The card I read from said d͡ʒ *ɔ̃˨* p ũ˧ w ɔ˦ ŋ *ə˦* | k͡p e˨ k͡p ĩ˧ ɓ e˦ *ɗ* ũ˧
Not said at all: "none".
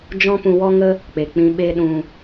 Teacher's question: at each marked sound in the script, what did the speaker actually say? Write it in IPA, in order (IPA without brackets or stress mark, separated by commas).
ɔ̃˦, ə˦, ɗ